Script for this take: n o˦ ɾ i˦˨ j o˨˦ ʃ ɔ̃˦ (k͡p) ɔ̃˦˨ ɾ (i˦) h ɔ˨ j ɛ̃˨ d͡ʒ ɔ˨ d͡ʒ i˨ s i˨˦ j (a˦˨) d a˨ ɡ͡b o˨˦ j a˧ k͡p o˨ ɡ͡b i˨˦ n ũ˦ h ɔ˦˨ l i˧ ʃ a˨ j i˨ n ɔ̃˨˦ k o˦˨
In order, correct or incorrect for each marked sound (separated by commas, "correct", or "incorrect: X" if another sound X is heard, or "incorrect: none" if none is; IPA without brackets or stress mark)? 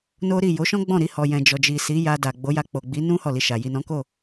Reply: incorrect: ɡ͡b, incorrect: i˧, incorrect: a˧